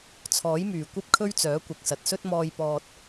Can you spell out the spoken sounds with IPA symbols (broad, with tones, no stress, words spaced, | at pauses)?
t͡sʰɔː˨˥jmyː˨˩ kʷɐ˥p̚kʰɵ˥ɥt͡sœː˨˥ kʷɐ˨k̚sɐ˨t̚sɵ˥t̚ mɔː˧j pɔː˧t̚